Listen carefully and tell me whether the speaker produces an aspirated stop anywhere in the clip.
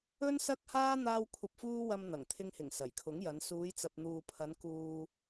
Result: yes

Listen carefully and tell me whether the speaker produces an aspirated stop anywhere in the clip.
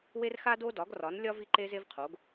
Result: yes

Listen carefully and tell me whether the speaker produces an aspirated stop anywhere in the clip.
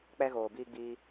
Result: no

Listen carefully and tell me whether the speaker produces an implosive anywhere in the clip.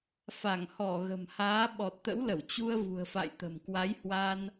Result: yes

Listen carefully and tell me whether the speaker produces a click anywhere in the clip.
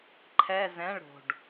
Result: yes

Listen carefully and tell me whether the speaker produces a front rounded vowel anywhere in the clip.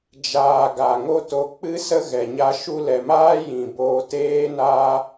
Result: no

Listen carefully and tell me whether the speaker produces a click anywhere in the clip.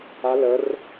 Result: no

